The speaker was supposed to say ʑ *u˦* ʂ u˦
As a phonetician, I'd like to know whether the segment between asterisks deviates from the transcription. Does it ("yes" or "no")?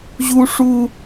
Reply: no